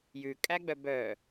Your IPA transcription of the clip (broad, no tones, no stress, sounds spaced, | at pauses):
j ʉ kʼ æ ɡ͡b œ b œ